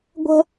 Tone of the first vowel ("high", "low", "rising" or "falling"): high